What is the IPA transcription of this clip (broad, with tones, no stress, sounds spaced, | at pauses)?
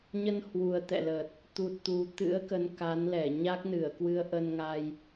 ɲ ə˧ n h w u˨˩ ə̯ t̪ ɛ̰˧˨ l ə˨˩ t̚ | t̪ u˨˩ t̚ t̪ u˨˩ t̪ ɨ̰˧˥ ə̯ k ə˨˦ n k a˨˦ n l ɛ˧˩ ɲ a˦˥ k̚ n ɨ˧˩ ə̯ k w ɨ˧ ə̯ ʔ ə˧ n ŋ a˧ j